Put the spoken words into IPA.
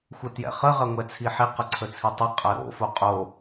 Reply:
xʷ ə t j ɛ̰ χ ə ʁ ɐ ŋʷ ɛ t͡sʰ i ħ i q ə ǀʰ ə t͡sʰ i tˤ ɛ qʼ ɐ ɾ o̰ f o qʼ o

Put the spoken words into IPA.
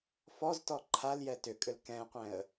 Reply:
f ɔ z t ɔ ǃʰ a l j ɛ t ʏ kʼ ʏ l k ɛ̃ qʷ ɛ̃ ə̯

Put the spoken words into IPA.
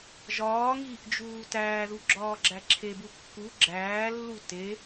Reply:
ʒ ɒː ŋ iː ʔ d͡ʒ uː t æː ð u ɡ͡ǁ ɒː ɡ͡ǁ æ ǁʰ e b u kː u ɡ͡ǁ æː lː u t e

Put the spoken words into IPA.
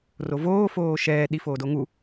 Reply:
r o v oː f oː ʃ ɛː ɗ i f oː d o ŋ u

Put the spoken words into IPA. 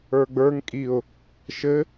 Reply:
ə˞ ɡ͡b ə˞ ŋ kʼ i ʊ̯ | ʃ ɘ

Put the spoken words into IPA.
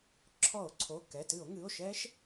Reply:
ǁʰ ɔ˧˩˧ o̯ ǀʰ o˩˧˩ k ɛ˩˧˩ t ɨ˧˩˧ o̯ ŋ ɨ˩˧˩ o̯ ʃ ɛ˦˥ ʃ

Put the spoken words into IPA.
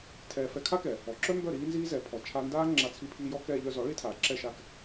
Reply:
tʰ ɛː˧ f ɛ˧ kʰ a˦ k ɛ˨ | ɔ˨ ǁ œ˦ m b œ˦˨ ɾ iː˦ n z iː˦ z ɛ˨˦ pʰ ɔ˨ t͡ʃʰ a˦ n d aː˦ ŋ͡ǁ a˧ t͡sʰ i˧ pʰ iː˧ j ɔ˦ k ɛː˧ ʎ œ˧ z ɔ˨˦ ɭ i˦ tʰ aː˨ ǁ ɛ˦˨ ʃ a˦˨ k

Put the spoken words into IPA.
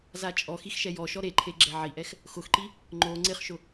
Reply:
z a t͡ʃʼ ɔ x i x ʃ ɛ j ɔ ʃ ɔ ɾ e ǃʰ e ɡ͡ǁ ɛ ʕ i ʔ ɛ x | x ʊ x ǃ i | ŋ͡ǃ o ŋ͡ǀ ɪ χ ʃ ʊ

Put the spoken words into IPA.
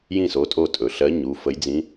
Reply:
j ĩ˦˨ s o˩˧˩ tʼ o˦˨ tʼ ɵ˩ ɬ ɜ˨˦ ɲ u˩˧˩ f ə˨˦ j d͡z ĩ˨˦

